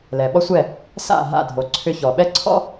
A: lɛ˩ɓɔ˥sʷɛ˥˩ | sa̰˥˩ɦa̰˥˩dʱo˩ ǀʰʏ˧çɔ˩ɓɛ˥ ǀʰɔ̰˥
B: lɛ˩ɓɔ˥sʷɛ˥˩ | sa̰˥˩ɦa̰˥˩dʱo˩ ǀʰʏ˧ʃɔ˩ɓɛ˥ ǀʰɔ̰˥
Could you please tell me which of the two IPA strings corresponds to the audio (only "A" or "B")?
A